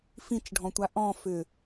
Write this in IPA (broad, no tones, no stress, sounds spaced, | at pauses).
f ĩ t͡ʃ ɖʱ ɔ̃ tʷ a ʔ ɔ̃ f ʏ